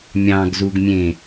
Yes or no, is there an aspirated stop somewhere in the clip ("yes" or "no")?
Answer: no